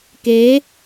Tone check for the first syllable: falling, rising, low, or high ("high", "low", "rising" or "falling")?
rising